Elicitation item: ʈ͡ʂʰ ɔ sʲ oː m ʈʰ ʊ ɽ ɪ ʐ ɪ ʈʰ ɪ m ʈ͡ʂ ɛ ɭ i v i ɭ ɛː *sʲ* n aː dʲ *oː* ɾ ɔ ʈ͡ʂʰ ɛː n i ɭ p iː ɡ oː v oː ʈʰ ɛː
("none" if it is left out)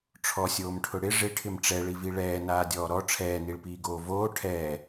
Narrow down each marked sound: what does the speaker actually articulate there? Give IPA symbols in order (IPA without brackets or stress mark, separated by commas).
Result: none, ɔː